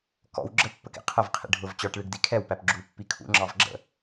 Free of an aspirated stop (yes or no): no